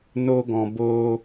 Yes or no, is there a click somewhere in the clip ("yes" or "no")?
no